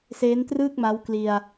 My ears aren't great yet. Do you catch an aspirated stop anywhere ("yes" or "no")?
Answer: no